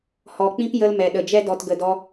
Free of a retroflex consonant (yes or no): yes